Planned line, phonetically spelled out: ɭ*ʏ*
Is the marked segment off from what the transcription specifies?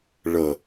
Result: yes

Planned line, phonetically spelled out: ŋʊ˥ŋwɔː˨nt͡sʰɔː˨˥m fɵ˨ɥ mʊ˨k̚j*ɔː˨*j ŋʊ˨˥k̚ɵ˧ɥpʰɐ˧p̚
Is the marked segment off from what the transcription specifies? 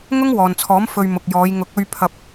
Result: yes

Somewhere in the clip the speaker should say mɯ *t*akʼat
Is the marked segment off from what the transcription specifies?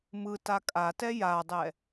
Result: no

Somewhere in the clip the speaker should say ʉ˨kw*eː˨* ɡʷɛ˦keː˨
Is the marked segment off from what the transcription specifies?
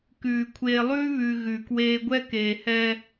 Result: yes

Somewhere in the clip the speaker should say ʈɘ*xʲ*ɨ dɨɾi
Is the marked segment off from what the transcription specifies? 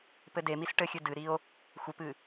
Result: no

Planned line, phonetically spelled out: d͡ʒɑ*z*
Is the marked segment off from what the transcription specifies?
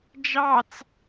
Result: yes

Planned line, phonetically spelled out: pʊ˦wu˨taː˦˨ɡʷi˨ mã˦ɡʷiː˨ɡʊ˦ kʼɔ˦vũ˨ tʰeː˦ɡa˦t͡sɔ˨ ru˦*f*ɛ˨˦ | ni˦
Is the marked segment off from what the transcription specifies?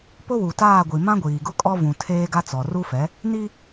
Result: no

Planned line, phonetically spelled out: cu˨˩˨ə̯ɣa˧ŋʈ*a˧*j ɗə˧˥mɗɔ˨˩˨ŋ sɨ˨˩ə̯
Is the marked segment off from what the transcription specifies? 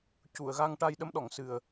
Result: no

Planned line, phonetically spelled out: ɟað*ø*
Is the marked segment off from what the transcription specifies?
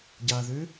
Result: no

